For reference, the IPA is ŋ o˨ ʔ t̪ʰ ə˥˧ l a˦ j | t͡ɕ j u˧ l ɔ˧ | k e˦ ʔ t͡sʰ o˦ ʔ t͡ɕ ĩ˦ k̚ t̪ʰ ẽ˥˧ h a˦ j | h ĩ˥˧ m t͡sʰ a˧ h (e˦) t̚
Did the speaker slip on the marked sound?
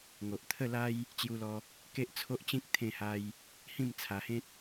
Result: yes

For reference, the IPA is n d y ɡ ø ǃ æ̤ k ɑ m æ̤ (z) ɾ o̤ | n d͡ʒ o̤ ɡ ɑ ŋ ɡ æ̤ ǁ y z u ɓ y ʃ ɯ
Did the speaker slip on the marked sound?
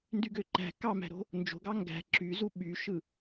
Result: yes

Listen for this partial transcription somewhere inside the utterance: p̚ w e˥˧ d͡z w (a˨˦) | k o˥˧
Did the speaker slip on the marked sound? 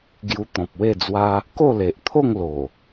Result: yes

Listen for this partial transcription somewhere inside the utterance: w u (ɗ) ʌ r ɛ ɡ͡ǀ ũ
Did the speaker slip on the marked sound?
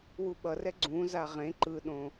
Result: yes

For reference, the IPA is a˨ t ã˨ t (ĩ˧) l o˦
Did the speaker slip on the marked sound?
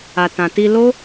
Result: yes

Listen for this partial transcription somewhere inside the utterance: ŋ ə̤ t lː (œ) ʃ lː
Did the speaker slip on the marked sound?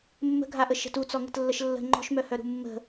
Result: yes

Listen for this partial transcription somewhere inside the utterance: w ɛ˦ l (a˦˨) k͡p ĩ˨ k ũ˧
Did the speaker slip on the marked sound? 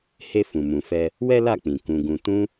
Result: no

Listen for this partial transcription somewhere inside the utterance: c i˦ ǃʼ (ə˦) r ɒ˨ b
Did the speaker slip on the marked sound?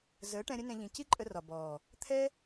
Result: yes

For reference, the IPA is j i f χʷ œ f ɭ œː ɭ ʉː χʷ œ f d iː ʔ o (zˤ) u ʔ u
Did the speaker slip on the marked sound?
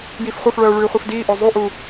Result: no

